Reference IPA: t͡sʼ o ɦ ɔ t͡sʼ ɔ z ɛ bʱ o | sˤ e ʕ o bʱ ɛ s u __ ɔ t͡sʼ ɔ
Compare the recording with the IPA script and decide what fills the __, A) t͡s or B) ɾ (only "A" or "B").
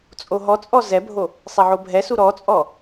B